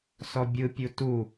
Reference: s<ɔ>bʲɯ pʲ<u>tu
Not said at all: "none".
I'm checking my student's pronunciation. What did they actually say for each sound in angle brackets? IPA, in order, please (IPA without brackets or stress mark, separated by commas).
ɔ, u